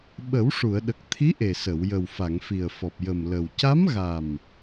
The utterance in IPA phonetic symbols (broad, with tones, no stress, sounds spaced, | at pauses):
ɓ ə˨˩˦ w ʂ u˨˩˨ ə̯ ɗ ə˨˩ k̚ t̪ʰ i˧˥ ʔ e˨˩ s ə˨˩˨ w j ə˨˩ w f a˨˩˨ ŋ f i˨˩ ə̯ f ɔ˨˩ p̚ j ə˨˩ m l ə˨˩ w c a˧˥ m ɣ a˨˩ m